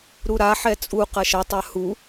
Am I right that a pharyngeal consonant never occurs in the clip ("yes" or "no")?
no